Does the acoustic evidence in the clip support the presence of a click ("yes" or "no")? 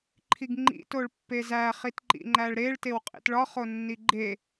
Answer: yes